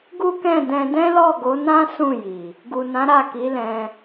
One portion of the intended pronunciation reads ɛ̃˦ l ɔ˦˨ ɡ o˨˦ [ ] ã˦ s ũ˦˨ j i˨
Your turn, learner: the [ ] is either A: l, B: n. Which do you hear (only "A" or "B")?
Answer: B